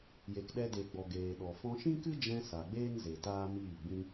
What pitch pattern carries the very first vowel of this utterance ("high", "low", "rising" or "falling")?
low